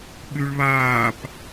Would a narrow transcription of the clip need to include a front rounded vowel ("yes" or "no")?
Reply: yes